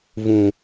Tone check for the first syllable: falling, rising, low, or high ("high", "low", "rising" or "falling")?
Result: low